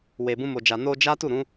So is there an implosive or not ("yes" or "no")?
no